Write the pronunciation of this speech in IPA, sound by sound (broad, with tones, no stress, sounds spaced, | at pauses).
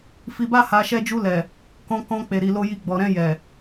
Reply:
f i˧ b a˦ h a˧ ʃ ɛ˧ d͡ʒ u˧ l ɛ˨ | k ɔ̃˧ k ɔ̃˧ k͡p e˨ ɾ i˨ l o˧ j i˧ ɡ͡b ɔ˨ ɾ ɛ̃˧ j ɛ˨